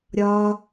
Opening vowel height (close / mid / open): open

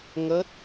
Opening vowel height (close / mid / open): mid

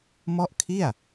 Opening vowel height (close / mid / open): mid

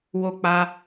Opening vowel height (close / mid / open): mid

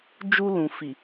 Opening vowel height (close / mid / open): close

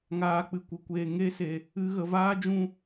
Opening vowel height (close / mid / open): open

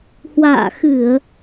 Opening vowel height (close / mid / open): open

